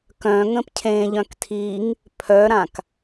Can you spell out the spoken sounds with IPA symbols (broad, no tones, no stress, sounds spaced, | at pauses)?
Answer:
k œ̃ ŋ ə̃ p cʰ ẽ ʎ œ̃ k tʰ i ŋ | pʰ œ ɾ ã k